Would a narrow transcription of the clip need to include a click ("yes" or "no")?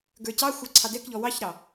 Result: yes